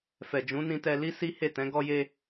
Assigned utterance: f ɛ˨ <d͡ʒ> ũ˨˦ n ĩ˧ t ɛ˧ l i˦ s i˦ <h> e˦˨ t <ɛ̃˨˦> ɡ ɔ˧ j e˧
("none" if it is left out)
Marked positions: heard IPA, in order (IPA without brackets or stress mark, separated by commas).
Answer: d͡ʒ, h, ɛ̃˨˦